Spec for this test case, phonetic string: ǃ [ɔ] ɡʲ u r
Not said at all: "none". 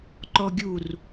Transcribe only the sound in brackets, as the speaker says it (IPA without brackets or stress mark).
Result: ɔ